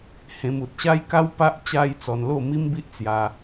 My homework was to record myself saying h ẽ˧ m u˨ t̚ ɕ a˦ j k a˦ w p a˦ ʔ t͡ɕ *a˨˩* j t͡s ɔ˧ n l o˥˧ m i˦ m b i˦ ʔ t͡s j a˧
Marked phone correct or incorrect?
incorrect